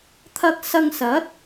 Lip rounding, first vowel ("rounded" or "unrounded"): unrounded